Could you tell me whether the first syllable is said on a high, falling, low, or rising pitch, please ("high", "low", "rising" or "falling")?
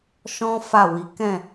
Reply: high